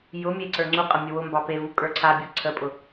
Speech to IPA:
j ʊ mʲ e ǀ ə˞ ŋ͡ǀ u qʼ ə mʲ ə w ʊ m b ɑ p e v u kʼ ə˞ ǀʰ a bʲ o ǀʰ ə pʼ ʊ

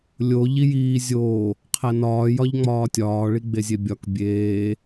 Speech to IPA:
lʲ o ʎ i j iː zʲ oː | qʰ æ n ɒː j ɒ ʎ ŋ͡m ɒː tʲ ɒː ɭ i ɡ͡b e zʲ e bʲ ɒ k bʲ eː

